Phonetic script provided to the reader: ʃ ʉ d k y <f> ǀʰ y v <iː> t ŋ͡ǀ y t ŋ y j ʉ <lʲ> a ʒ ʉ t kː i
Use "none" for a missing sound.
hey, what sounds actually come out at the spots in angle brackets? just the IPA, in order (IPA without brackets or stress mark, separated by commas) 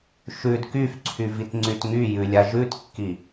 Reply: f, i, lʲ